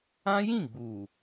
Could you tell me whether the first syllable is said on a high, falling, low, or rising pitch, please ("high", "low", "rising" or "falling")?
high